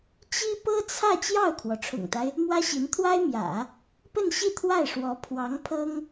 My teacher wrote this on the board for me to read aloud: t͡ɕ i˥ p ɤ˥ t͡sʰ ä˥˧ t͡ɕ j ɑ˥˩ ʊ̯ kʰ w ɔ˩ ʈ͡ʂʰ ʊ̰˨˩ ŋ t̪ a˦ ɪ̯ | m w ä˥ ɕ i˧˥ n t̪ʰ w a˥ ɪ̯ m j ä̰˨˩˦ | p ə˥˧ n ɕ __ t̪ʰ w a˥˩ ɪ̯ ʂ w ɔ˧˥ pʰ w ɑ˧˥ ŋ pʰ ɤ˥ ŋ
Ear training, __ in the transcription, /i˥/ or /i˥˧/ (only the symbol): i˥˧